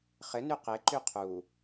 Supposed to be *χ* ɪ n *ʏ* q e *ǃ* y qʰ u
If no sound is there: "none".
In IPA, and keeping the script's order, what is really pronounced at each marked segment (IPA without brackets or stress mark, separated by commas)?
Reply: χ, y, ǃ